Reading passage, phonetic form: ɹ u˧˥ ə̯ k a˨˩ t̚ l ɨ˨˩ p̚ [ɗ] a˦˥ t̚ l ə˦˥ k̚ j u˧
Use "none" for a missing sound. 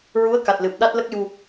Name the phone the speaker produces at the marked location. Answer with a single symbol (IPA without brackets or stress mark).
ɗ